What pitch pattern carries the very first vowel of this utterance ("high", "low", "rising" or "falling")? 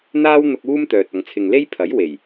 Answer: high